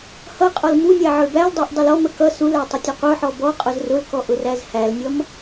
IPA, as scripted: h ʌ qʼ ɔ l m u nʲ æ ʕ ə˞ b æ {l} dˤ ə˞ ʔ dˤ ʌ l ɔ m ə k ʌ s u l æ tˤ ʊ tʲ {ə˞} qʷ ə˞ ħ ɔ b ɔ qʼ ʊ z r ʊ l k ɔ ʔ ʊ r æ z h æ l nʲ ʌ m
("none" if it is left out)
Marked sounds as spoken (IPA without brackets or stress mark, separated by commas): l, ʌ